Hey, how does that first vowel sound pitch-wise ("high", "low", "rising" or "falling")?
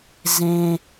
high